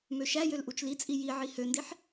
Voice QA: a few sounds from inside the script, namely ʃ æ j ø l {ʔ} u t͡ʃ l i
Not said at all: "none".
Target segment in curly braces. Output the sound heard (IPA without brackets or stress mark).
ʔ